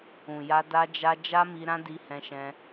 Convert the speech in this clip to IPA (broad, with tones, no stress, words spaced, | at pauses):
ũ˨ja˧ da˧d͡ʒa˧ d͡ʒa˦mi˧ ɾã˦di˧hɛ̃˧ʃɛ̃˧